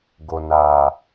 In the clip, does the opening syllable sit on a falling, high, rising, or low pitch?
low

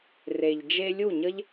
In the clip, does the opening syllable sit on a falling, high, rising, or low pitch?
low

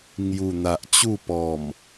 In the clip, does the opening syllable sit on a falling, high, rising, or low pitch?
low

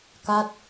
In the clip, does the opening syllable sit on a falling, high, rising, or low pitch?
falling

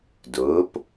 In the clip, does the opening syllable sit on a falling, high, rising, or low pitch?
rising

